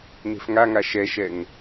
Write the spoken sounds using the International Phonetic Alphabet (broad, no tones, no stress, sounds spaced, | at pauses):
n e̤ f ŋ a ŋ a ʃ ɛ ʃ ɛ ŋ